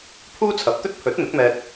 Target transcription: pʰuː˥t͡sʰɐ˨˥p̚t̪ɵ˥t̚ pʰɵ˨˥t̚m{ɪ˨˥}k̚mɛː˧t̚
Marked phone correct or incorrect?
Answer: correct